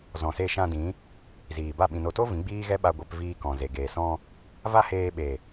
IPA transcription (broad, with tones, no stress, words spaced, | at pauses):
zɔ̃˨se˧ʃã˧dĩ˨˦ | ziː˨ba˦˨ ɓĩ˨no˨to˦ vĩ˨˦ɡ͡biː˦ɣɛ˦ɓa˧ ɡʷɛ˧pviː˧ kɔ̃˨ze˨ɡeː˨ sɔ̃˧ | va˦ heː˧ɓe˨